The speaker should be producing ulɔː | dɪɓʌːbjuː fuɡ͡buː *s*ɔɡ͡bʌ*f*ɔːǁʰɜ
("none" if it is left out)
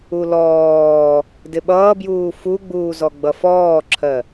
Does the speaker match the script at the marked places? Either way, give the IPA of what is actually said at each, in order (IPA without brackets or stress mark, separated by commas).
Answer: z, f